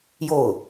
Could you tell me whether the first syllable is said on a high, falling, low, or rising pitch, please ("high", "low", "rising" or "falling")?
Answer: falling